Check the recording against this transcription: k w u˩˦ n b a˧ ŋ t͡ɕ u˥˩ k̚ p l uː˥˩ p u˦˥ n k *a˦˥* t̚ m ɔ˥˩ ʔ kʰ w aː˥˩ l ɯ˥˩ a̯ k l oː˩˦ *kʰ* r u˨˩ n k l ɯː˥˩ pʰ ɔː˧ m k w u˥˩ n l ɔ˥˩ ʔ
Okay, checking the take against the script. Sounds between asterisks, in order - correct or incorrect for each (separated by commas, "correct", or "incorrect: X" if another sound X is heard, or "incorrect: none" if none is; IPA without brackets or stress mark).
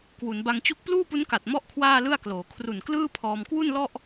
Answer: incorrect: a˨˩, correct